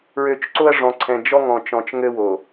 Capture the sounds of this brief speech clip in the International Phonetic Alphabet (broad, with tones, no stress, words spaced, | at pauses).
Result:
ɹø˨t͡ʃ ǀo˦ɐ̯ʐɔ̃˨ǀʰɛ̃˨ d͡ʒɔ˦ŋɔ̃˨t͡ʃɔ̃˨t͡ʃ ŋɘ˦wo˨